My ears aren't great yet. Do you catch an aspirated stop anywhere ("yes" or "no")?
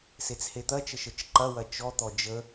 no